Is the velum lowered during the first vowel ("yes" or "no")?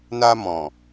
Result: no